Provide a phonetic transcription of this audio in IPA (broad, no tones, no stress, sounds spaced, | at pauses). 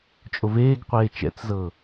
t͡ʃʼ o v eː ɡ qʷ eː t͡ʃ ɛ̰ t͡s z ɤː